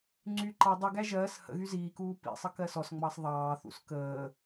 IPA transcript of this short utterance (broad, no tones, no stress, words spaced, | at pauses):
ŋ͡ǀy ǃɑ dˤyɡæ ʒɜːs hə̰ɣy ziːkuː pḭsˤə kɜsɔsŋ͡mɑs ðˤɑːθṵs kəː